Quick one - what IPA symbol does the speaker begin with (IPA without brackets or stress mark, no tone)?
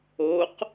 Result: o